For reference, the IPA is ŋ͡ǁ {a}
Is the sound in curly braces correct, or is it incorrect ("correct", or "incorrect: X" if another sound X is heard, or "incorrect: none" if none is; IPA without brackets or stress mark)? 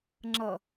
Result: incorrect: ʌ